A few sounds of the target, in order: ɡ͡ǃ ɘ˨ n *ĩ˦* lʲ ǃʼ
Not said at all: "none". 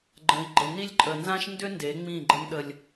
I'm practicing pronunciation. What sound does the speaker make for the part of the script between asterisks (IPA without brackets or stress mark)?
i˦